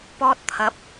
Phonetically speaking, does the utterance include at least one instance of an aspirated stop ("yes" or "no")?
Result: yes